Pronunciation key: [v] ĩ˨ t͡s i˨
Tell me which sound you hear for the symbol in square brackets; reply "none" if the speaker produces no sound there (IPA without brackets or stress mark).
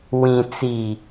w